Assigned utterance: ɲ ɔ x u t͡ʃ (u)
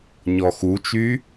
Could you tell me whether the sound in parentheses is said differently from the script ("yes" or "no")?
yes